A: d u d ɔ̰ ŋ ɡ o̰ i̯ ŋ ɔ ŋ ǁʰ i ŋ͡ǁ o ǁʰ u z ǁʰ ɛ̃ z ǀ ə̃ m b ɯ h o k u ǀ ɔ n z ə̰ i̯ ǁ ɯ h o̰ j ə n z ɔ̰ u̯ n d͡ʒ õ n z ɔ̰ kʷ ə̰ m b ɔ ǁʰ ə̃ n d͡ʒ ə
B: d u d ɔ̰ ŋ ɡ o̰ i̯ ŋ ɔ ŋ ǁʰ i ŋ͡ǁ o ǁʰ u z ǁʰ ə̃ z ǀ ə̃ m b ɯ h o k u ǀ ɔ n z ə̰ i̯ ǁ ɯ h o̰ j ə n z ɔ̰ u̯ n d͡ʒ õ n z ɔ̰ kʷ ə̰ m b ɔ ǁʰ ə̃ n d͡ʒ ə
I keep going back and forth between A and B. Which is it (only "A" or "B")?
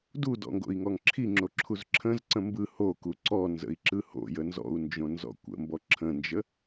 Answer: B